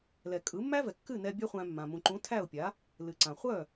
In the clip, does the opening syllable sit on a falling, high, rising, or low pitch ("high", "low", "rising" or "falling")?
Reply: low